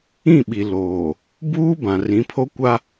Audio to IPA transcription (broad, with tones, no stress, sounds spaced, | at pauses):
ĩ˦˨ ɓ i˨ l oː˨ | b uː˦ b ã˨ r ĩ˨˦ pʰ o˦ kʷ a˦